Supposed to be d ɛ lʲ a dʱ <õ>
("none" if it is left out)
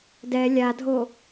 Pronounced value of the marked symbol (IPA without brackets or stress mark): o